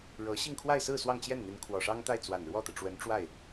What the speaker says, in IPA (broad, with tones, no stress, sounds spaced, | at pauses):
ɻ ɤ˧˥ ɕ i˥˧ ŋ kʰ w a˥˧ ɪ̯ s ɹ̩˥˧ s w ɑ˥˧ ŋ t͡ɕ j ɛ˥˩ n n̪ i˧˥ n kʰ w ɔ˨˩ ʂ ɑ˥ ŋ t̪ a˥˩ ɪ̯ t͡s w a˨˩ n ɻ w ɔ˥˩ t̪ ɤ˩ ʈ͡ʂ w ə˧˥ n ʈ͡ʂ w a˥˩ ɪ̯